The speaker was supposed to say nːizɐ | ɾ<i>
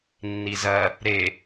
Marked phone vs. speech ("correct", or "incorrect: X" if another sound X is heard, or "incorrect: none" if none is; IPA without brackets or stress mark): incorrect: e